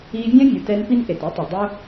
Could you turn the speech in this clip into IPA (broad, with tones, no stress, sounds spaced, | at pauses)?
i˧ vʲ ɛ̃˥ vʲ u˩ t ɛ˧ n p i˥ n ʔ e˩ t i˥ tˤ ɪ˩ dˤ ʊ˧